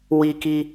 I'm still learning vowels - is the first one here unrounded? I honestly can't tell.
yes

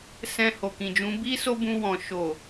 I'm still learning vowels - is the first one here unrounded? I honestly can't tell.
yes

